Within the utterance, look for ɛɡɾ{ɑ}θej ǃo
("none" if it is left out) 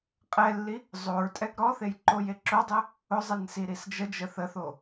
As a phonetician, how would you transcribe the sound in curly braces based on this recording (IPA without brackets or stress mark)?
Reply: ɔ